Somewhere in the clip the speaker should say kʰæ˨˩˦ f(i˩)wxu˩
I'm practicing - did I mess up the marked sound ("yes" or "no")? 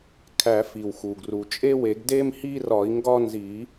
no